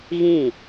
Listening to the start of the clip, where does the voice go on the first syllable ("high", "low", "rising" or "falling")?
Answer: falling